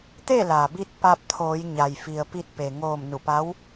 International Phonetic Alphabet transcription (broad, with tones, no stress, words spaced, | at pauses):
t̪e˥˨la˩bi˧t̚ pa˧p̚t̪ʰoː˩˧j ɲa˩jfi˩ə̯pi˧t̚ pe˩ŋoː˧˩m nu˧˩pa˧˥w